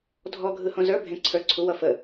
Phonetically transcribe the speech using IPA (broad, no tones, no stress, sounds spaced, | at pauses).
dʱ ɔ ɡʱ ɯ h õ z ə˞ bʱ ẽ ǀʰ ə˞ ǀʰ u w ʌ f ə